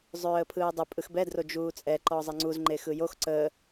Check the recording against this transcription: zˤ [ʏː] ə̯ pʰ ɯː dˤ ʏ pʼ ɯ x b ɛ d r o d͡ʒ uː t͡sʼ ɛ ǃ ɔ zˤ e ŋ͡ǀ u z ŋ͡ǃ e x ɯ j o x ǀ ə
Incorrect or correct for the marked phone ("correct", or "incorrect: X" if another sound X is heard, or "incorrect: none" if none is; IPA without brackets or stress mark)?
correct